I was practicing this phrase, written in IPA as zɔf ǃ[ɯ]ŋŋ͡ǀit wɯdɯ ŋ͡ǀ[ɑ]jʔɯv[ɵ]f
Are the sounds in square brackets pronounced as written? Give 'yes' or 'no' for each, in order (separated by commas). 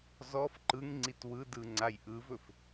yes, no, yes